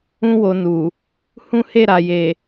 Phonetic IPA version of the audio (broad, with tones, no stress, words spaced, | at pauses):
ũ˧wo˨ nu˨ | hũ˦he˦˨ɾa˨je˨